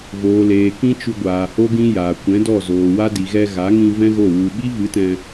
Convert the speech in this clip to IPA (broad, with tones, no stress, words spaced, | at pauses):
voː˨leː˨ kĩ˦t͡ʃu˧ɡʷaː˨ ho˦ɡĩ˦jaː˨ kʷɛ̃˨˦dɔ˦˨zoː˨wa˦ di˨ɣɛ˧ɣa˨˦ŋĩ˧ vɛ̃˦ɣo˦˨ wu˧ ɓi˦vɨ˨˦tɛ̃˧